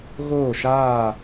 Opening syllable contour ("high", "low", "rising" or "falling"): falling